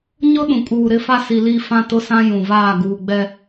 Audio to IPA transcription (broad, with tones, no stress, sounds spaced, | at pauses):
ɲ ʊ˦ ɗ ũ˨ kʼ uː˨ ɾ ɪ˦ f a˦ s i˨ l i˦˨ f ã˦˨ t ʊ˦˨ s ã˦ j ũ˨ v aː˦˨ ɡ uː˨ ɡ͡b ɛ˦